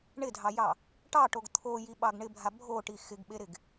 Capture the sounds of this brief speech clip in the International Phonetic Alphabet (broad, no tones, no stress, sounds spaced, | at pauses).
ɳ ɪ dʱ ɑ j ɑ | ʈ ɑ ʈ o ɡ t̪ʰ o j i ɓ ɑ ɡ ɳ ɪ bʱ a bʱ o ʈ i x ɪ ɡ ɓ e ɾ ɪ ɡ